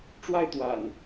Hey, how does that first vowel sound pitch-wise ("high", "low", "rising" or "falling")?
high